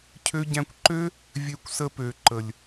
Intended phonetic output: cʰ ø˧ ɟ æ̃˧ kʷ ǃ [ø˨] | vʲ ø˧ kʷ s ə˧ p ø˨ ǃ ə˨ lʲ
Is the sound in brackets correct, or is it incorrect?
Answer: incorrect